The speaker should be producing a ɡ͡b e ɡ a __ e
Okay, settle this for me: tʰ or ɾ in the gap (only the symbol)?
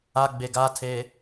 tʰ